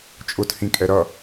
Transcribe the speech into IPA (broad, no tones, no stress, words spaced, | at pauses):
t͡ʃʼʊthĩkʼɛ ɾʌ